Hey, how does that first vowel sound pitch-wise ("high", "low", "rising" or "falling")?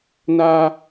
high